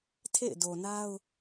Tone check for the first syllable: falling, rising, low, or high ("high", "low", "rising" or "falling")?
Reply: falling